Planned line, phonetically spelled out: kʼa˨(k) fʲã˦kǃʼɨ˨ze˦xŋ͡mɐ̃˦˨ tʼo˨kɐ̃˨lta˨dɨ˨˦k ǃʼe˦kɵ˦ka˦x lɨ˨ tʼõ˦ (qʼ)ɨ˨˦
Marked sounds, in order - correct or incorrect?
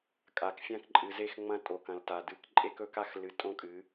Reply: correct, incorrect: kʼ

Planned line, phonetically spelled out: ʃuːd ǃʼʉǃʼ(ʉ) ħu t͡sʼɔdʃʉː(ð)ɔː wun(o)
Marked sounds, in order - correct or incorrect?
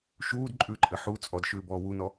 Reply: incorrect: ɘ, incorrect: b, incorrect: ɔ

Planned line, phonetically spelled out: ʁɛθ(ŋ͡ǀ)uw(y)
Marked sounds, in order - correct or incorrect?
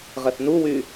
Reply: incorrect: n, correct

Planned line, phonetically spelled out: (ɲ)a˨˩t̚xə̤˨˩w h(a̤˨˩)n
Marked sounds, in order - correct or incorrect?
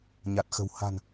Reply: correct, correct

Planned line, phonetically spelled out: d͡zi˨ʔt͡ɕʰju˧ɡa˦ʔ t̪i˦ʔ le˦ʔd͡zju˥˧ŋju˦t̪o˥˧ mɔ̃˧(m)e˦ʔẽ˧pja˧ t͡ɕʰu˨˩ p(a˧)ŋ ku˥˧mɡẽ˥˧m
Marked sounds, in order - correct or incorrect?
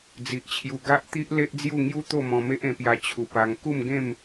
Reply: correct, correct

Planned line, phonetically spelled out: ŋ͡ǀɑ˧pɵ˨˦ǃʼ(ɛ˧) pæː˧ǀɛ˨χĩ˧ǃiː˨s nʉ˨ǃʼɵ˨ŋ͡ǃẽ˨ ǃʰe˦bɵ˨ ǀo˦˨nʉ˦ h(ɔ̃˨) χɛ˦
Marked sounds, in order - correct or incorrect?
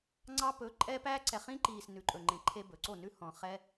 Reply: correct, correct

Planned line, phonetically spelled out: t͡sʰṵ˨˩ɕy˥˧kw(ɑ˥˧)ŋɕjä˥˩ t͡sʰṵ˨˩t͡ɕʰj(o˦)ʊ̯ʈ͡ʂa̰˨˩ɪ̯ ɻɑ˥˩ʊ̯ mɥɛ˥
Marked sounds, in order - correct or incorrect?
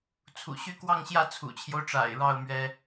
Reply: correct, correct

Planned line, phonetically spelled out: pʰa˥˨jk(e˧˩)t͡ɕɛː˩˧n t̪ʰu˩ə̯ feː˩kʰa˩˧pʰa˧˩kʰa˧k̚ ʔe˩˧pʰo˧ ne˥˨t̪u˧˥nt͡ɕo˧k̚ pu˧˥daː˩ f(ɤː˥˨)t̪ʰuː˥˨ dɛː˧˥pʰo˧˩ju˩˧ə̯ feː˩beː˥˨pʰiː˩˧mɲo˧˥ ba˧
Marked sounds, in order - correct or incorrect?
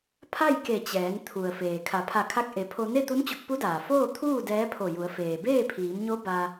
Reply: correct, incorrect: oː˥˨

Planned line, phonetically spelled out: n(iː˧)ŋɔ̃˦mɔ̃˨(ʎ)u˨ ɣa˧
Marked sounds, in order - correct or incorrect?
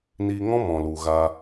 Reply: correct, incorrect: l

